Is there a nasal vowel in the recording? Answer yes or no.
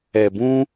yes